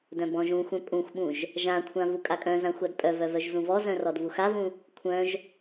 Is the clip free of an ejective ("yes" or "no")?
no